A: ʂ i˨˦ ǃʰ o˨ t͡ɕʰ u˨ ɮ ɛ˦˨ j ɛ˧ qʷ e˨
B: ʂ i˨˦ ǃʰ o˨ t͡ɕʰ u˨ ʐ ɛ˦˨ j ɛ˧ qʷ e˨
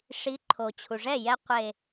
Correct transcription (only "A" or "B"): B